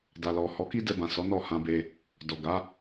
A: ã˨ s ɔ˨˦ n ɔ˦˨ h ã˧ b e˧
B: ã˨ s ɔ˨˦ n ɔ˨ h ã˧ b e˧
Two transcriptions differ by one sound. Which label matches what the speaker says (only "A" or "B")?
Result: A